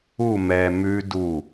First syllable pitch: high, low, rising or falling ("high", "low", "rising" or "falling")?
falling